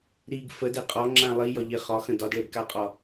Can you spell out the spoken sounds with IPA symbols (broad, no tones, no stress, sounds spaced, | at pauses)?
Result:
ɾ i ɡ f ə d e qʼ ɒ ŋ͡ǁ ã lˠ i j ɒ ʎ e χ ɒ x ə̃ d ɒ d ɭ e ɡ k a qʼ ɒ